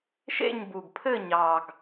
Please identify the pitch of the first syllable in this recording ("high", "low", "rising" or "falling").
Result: falling